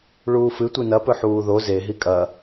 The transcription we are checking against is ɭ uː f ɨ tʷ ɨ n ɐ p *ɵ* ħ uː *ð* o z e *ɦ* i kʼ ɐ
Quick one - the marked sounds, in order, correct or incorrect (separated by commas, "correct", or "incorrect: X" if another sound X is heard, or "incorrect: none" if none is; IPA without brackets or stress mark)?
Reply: correct, correct, correct